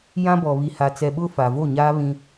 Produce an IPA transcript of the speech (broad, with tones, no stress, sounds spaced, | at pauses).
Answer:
j ã˦ b ɔ˨ β i˨ h a˨ t͡s ɛ˨ ɓ ʊ˦ f a˨ v o˦˨ ɲ aː˦ β ĩ˦